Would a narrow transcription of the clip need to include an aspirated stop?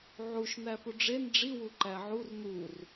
no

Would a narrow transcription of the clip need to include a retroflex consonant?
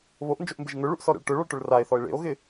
yes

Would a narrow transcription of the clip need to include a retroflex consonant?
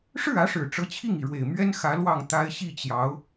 yes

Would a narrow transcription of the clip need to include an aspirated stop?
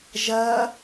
no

